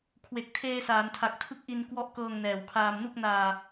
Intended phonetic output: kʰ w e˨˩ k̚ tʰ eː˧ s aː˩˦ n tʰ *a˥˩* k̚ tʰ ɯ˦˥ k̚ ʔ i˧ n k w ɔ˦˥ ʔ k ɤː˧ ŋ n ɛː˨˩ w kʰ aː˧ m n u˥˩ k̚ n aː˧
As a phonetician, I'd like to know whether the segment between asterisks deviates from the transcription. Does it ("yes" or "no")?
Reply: yes